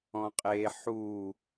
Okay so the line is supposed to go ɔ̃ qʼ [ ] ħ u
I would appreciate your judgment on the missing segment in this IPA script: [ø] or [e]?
e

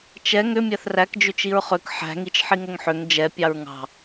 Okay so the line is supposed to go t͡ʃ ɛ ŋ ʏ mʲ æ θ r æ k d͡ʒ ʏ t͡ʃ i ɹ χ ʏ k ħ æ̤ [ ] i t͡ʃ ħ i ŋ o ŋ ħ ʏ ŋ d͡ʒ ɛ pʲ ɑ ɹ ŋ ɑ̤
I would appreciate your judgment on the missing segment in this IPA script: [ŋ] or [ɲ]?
ŋ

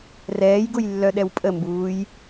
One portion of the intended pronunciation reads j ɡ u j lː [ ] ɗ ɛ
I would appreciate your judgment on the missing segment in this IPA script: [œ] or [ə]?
œ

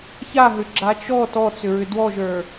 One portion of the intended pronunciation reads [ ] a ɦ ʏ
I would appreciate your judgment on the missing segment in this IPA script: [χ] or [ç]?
ç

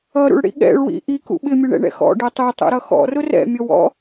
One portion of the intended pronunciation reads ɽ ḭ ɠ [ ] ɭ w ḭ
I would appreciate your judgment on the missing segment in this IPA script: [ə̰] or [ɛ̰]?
ɛ̰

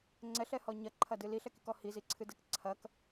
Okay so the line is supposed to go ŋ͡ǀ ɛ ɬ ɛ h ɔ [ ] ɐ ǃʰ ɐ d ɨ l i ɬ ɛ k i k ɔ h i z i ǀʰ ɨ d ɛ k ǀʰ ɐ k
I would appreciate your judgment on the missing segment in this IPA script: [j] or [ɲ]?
ɲ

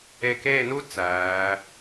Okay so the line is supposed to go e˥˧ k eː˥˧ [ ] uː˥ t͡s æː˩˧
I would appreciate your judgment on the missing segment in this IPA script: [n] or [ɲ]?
n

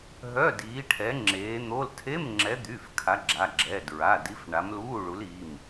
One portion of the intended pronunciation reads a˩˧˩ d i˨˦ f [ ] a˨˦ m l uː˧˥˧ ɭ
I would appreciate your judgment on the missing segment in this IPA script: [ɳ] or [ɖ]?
ɳ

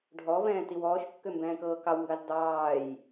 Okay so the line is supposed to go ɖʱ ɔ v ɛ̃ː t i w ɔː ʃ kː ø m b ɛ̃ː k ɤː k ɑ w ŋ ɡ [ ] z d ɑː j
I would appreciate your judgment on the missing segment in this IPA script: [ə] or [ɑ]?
ɑ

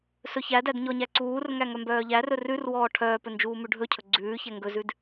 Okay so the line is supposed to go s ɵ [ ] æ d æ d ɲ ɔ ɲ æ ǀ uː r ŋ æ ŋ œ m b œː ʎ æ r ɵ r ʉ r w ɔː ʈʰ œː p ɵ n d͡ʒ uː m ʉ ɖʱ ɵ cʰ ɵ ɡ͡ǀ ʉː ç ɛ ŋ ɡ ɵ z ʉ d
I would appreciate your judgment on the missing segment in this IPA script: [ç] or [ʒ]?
ç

